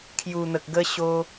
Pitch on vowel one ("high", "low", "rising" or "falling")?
low